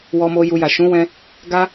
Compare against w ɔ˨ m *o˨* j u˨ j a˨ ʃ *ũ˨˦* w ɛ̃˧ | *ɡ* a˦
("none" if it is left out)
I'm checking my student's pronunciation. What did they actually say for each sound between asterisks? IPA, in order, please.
o˨, ũ˨˦, ɡ

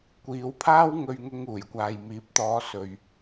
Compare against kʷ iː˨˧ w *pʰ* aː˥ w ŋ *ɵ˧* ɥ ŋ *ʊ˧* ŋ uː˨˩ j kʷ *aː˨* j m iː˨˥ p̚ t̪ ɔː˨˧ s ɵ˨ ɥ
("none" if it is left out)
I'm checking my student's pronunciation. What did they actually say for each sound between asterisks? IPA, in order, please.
pʰ, ɵ˧, ʊ˧, aː˨

